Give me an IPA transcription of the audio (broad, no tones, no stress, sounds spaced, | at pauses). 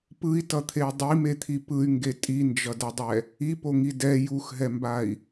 p ɯ i̯ t ʌ t̪ʰ e y̯ dˤ i m e t̪ʰ i p ɯ y̯ ŋ ɡ e tʼ i n d͡ʒ ʌ d ʌ dˤ ɛ | i p o ŋ i d ɛ j u x ɦ ɛ m b a i̯